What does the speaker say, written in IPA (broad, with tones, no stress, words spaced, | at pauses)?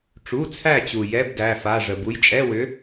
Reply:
ʈ͡ʂu˩˧˩t͡sʰæ˧˩t͡ɕu˩ jɛ˧˥˧bdæ˩˧˩fa˩˧˩ʐə˩ bu˨˥jt͡ʃʼɛ˧˥˧wʏ˨˥